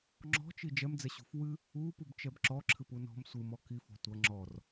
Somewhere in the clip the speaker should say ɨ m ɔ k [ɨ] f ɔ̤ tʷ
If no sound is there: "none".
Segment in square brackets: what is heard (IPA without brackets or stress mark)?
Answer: i